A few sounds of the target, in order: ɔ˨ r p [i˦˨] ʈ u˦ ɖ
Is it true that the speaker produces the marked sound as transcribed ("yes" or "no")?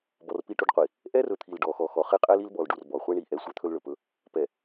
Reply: yes